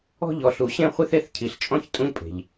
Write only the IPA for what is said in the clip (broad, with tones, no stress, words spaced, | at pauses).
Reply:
ɔ̤˥ʎɔ˨ ɬu˨ɕẽ˥χʷi˥θe˥θ cʰi˨ɬt͡ʃʼɔ̃˥ç tʼũ˥ʎpʼe̤˨ʎ